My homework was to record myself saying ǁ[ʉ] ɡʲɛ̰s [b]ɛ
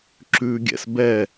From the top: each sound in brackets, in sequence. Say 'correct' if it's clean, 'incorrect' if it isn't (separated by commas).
correct, correct